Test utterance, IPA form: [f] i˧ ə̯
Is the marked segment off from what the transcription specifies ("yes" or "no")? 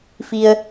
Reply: no